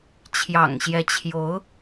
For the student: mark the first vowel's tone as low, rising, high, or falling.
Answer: low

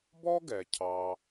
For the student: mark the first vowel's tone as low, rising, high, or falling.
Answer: high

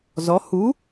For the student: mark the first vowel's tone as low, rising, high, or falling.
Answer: rising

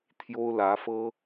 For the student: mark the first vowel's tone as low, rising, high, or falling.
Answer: high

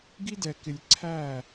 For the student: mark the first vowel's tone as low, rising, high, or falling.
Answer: high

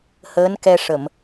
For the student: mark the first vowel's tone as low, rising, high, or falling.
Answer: rising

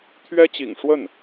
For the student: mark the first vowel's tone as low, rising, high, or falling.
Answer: high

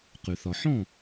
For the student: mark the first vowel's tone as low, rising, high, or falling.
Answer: low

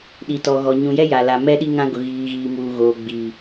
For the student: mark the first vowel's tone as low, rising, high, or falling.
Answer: low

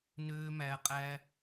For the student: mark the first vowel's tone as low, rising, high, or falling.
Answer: high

